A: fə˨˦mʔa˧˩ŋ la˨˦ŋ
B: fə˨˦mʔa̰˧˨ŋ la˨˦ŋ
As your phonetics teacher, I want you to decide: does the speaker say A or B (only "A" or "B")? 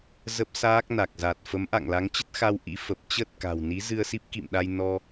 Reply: B